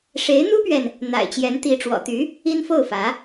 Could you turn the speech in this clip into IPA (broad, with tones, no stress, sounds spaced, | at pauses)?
ʂ e˧˥ ɪ̯ n̪ u˥ p ɥ ɛ˨ n | n̪ a̰˨˩ ɪ̯ t͡ɕ j ɛ˧˥ n t̪ i˧˥ ʈ͡ʂ w ɔ̰˨˩ t̪ y˧˥ | i˥ n f o˥˩ ʊ̯ f ä˧˥